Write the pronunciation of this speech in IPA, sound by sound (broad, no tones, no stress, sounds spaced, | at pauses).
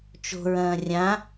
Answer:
t͡ʃ o̤ ɹ ɐ̃ː rʲ ã